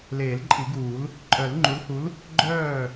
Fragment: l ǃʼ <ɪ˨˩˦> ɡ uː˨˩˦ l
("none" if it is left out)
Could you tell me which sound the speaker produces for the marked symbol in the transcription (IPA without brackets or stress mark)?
i˨˩˦